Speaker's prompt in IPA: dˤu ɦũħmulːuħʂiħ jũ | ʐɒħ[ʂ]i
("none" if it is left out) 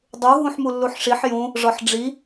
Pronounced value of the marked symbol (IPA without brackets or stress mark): ɖ͡ʐ